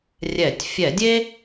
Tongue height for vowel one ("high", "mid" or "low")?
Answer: mid